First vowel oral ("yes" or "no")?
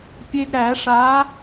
yes